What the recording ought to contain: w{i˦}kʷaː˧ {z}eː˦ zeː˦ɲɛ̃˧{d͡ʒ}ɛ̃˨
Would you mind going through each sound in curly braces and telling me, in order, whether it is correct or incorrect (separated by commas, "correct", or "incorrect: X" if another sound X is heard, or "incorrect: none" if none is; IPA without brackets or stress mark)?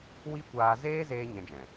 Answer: correct, correct, correct